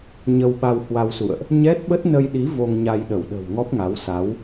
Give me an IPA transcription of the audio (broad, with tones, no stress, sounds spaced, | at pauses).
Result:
ɲ ə˧ w ɓ a˧ w h w a˧ w s ṵ˧˨ ə̯ ʔ | ɲ ɛ˦˥ t̚ ɓ ə˦˥ t̚ n ə˧ j ɗ i˨˦ v o˧ ŋ ɲ a˧ j ɗ ə˧˩ w ɗ ə̤˨˩ w ŋ ɔ˦˥ p̚ ŋ a˨˦ w s a˨˦ w